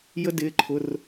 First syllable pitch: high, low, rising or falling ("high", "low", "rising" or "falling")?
high